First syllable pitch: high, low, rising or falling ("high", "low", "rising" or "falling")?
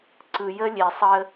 low